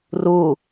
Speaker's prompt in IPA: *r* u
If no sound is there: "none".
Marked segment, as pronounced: r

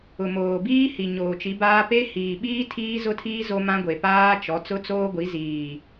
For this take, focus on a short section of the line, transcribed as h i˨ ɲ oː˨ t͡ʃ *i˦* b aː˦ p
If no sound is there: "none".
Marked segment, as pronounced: i˨˦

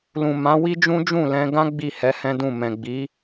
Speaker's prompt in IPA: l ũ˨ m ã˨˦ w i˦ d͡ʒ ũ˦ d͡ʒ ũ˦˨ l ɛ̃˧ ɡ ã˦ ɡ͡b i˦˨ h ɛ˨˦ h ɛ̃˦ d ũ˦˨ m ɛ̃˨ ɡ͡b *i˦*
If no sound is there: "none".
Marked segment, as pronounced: i˨˦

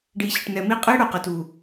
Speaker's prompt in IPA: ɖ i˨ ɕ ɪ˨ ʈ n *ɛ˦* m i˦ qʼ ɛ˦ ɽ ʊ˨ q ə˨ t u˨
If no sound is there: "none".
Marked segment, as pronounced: ɛ˨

